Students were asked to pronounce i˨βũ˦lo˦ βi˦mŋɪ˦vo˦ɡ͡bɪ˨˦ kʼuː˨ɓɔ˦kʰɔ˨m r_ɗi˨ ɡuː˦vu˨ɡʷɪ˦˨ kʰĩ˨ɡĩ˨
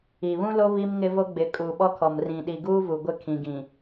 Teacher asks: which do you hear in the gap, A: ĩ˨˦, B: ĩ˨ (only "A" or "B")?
B